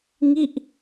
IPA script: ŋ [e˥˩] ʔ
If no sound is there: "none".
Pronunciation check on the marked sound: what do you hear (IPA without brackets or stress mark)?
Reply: i˥˩